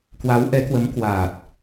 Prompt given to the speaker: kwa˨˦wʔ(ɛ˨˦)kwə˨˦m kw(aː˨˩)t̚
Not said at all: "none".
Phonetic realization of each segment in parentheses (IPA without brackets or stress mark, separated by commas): ɛ˨˦, aː˨˩